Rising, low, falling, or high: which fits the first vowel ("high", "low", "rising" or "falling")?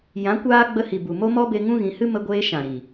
rising